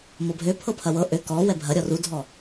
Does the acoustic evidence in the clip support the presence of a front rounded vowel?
yes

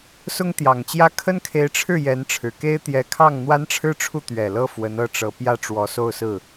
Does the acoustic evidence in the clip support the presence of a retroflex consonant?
yes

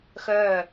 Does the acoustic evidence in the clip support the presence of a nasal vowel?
no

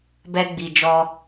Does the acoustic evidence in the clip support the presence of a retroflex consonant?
no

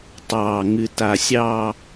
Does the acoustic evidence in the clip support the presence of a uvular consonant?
no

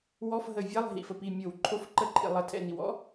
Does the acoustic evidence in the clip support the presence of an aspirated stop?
yes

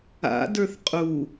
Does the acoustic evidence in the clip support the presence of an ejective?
yes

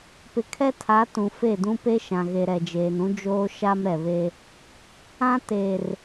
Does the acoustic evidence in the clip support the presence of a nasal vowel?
yes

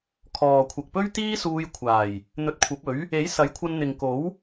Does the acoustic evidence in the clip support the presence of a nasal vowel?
no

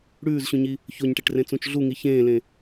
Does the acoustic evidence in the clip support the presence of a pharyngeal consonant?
no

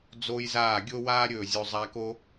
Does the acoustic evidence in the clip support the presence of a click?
no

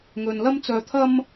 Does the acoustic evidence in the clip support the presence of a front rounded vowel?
yes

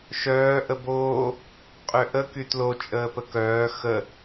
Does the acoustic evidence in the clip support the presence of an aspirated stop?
no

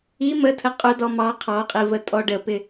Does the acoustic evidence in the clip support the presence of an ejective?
yes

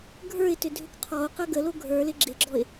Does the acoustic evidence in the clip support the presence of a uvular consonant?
yes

